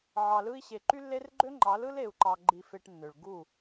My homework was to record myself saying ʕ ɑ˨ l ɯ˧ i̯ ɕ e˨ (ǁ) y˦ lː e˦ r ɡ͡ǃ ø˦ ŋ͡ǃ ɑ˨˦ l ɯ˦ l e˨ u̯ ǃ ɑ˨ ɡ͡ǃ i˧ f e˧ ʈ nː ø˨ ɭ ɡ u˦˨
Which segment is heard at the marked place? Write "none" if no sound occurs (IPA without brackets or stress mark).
ǃ